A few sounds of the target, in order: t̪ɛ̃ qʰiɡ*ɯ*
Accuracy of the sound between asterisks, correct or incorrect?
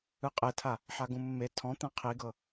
incorrect